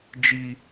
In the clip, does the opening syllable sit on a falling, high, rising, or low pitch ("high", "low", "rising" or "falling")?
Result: high